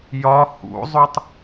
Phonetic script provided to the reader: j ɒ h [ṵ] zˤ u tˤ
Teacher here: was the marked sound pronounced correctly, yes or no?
yes